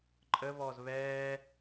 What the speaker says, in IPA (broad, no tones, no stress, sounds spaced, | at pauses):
ǃʼ ə β ɔ z β ɛː